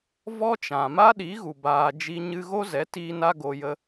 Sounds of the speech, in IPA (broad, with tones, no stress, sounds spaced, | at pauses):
v ɔ˦ t͡ʃ ã˨ m a˦ ɗ i˨˦ ɣ u˨ b aː˧ d͡ʒ i˧ ɲ ɨ˧ ɣ o˦ z ɛ˨˦ t iː˧ n a˦ ɡ o˧ j ə˦